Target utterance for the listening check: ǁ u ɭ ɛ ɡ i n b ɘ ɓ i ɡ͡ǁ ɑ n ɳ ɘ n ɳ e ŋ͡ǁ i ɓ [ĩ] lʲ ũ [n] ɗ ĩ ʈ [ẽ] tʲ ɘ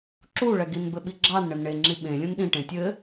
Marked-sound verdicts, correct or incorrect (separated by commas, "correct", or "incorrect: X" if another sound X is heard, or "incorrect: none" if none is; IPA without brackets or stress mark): incorrect: ẽ, correct, correct